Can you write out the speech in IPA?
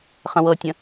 χə̃wɤtʲə̃

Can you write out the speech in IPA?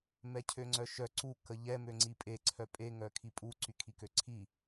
mɛcʰøŋ͡ǀœʃœ ǀu kəʎɛ møŋ͡ǀipʼe ǀʰœpʼe ŋœkʰipʼu ǀykʰikøǀʰi

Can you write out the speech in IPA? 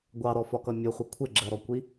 ɡʷɑɾɔfɒkʌ mʲʊχʷʌ kʷʰɪɡ͡ǁɜɾɔkʷi

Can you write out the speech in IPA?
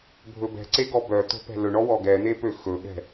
bʱɵbɛ̤ǀe ɡɔbœt̪o̤ pɛ̤lɵɳɔ wɔɡɛn̪e pøxɵɠɛ̤

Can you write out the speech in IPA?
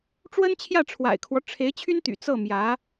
ʈ͡ʂwə˥nt͡ɕʰjä˥˩ʈ͡ʂʰwa̰˨˩ɪ̯kʰwɔ˦ ʈ͡ʂʰe˧˥ɪ̯t͡ɕʰy˥nt̪y̰˨˩ t͡sɤ˥˩mjä˧˥

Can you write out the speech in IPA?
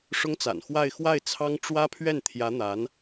ʂʊ˥ŋt͡sa̰˨˩nxwa˥˧ɪ̯ xwa˥˩ɪ̯t͡sʰɑ˥ŋ ʈ͡ʂwä˥pʰɥɛ˥˩n t̪ʰjä˧˥n̪a˧˥n

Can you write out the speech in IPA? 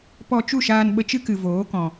pɔ˧ t͡ʃu˦˨ʃaː˧n ɓə˧t͡ʃɨ˦kɨ˨ voː˨˦kɔ̃˨

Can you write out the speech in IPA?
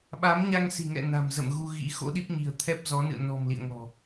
ɓa˨˦mɲa˧ŋsi̤˨˩ŋɛ̰˧˨ na̤˨˩m zə̰˧˨m ɣu˧ɣḭ˧˥ xo̰˧˥ɗi˦˥p̚ɲi̤˨˩ə̯ t̪ʰɛ˦˥p̚zɔ˨˦ nɨ̰˧˨ə̯nɔ̤˨˩m lḭ˧˨ə̯ŋɔ̤˨˩

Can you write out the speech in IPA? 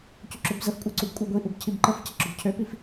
cuǁøbzəfkʷʼa ǀubkʷʼaɡʷiʔub cʰibǃəfcə ǁobcʰøpif

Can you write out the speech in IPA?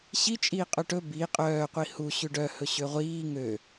ɕi t͡ʃʼiːqʼɵʈɵ bi qʼœː qʷihu ɕʉɖœhɵ ɕøʁʷiː ŋø

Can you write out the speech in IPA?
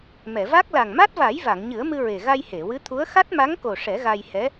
mɛ˨˩˨va˦˥k̚ la˨˩ŋma˦˥t̚va˨˩˦j va˨˩˨ŋɲɨ˨˩˦ə̯mɨ˧ ɹe˨˩ ɣa˧jhe˨˩˨wɨ˧˥t̪ʰu˧˥ə̯ xa˦˥t̚ma˧˥ŋko˨˩ ʂɛ˨˩˦ɣa˧jhɛ˧˥

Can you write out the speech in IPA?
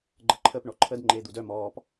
ɡ͡ǃəǃʰəp ɳɔǃʰəd ŋ͡ǃeːd̪udœm ɔːp

